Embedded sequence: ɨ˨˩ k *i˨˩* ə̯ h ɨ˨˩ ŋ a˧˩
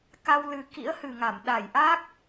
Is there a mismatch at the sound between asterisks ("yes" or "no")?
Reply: yes